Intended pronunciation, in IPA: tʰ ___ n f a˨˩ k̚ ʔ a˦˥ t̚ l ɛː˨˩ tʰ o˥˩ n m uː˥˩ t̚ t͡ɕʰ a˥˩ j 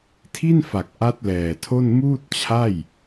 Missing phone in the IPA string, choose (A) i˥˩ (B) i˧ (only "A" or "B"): A